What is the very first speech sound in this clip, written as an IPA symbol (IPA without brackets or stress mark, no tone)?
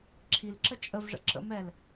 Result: ǁʰ